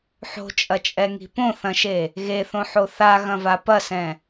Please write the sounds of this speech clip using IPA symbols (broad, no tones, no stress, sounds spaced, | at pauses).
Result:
ħ o̤ t͡ʃʼ ɐ t͡ʃʼ ɛ ŋ i̤ p õ θ ɐ̃ ʃ e | ɣ e θ õ ħ o θ a ɣ ɐ̃ v a p ɐ s ɛ̃